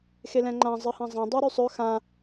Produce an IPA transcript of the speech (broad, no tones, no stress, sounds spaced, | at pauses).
x e l ɛ̃ ŋ͡ǃ ã zˤ ɨ h ã zˤ ã dˤ y ɾ y sˤ ɵ x ã